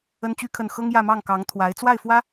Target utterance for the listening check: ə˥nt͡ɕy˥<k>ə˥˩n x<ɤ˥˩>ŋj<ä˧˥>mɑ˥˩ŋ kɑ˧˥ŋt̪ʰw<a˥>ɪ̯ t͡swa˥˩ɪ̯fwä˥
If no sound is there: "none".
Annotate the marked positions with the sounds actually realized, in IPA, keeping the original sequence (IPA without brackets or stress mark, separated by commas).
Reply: kʰ, ɤ˥, ä˥˧, a˧˥